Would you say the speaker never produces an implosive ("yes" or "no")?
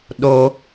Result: no